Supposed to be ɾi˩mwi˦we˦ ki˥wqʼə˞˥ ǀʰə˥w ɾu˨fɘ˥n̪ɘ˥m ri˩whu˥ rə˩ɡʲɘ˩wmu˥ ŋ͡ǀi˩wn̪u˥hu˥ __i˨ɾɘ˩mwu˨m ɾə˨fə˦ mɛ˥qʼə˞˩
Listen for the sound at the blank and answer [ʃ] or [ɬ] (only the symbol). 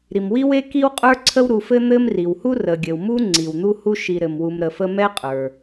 ʃ